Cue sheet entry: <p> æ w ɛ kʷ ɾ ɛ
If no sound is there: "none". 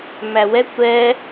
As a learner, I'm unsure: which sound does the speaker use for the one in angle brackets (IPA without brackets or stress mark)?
m